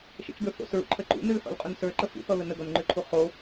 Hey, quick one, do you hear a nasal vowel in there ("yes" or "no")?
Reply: no